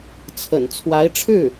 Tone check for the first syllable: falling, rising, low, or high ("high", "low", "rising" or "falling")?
low